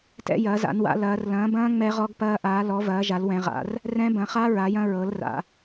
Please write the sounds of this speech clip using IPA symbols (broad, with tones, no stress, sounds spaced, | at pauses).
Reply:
t ɛ̰˦˥ j ɐː˨˦ z a̰˨˦ n w a̰˨˦ l ɐː˨˦ r l ɐ̃ː˨˦ b ɐ̃ː˦˥ ŋ͡m ɛ˦˥ ʁ ɔ˦˥ ɡ p ɐː˦˥ ʔ aː˨˦ l ɔ˨˦ v ɐː˨˦ ʒ a˨˦ l w ɛ̃˨˦ ʁ a̰˨˦ r | r ɛ̃˦˥ b ɐ̃˨˦ χ a˦˥ ɹ a˨˦ j ɐ̃˦˥ ɹ ɤ˨˦ l r a̰˨˦